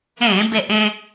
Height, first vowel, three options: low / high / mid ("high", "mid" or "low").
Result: mid